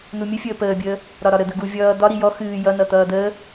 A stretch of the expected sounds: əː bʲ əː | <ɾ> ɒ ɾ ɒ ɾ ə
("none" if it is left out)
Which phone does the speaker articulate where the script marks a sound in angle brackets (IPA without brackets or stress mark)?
ɾ